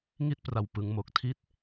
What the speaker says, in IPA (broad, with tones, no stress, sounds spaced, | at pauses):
ŋ i˥˩ t̚ p r a˧ w p ɯ˦˥ ŋ m o˦˥ k̚ tʰ i˦˥ t̚